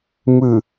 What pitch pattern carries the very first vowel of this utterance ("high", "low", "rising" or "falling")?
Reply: low